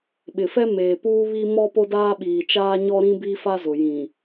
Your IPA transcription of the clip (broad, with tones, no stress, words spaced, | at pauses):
ɓɪ˨fɛ˦ meː˨puː˦βi˦mɔ˦ po˦daː˦ ɓiː˨ t͡ʃaː˦ɲɔ˦ɾĩ˦ bi˦fa˦zʊ˨ jĩ˨